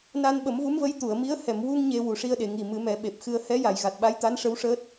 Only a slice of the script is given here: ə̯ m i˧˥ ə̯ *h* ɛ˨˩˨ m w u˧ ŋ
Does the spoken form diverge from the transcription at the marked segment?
no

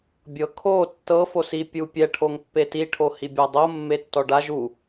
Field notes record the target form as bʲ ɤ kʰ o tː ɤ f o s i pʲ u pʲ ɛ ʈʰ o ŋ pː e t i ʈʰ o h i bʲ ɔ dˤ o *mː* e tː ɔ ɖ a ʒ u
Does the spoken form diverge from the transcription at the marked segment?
no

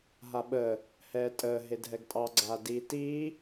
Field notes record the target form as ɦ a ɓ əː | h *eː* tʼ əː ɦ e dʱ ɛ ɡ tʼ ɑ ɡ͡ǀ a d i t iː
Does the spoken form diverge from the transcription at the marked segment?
yes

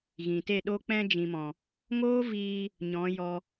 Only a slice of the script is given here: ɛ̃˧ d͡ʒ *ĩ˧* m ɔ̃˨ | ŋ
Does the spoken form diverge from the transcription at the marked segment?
yes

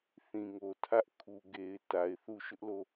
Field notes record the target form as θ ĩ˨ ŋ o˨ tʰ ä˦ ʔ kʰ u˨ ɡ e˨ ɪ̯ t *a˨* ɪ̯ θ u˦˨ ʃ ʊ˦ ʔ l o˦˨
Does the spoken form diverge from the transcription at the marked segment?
no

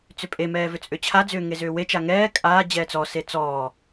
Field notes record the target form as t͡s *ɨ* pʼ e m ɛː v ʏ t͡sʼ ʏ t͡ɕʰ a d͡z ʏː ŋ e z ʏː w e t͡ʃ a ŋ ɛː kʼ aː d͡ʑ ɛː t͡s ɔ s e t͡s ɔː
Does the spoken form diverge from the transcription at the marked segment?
yes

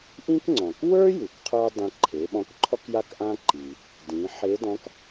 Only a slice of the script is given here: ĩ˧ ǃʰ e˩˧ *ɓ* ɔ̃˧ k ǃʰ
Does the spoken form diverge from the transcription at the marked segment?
no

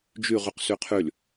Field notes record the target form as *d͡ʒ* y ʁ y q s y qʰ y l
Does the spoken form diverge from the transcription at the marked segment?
no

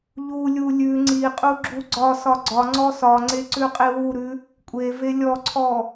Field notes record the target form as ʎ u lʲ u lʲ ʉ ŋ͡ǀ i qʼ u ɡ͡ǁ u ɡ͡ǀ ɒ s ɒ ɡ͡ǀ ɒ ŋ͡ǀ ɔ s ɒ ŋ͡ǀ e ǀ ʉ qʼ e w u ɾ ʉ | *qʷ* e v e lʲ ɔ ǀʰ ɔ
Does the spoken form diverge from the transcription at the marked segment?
yes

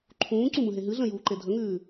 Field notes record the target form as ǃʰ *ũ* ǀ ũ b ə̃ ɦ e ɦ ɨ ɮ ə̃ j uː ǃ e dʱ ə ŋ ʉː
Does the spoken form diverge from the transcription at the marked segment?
yes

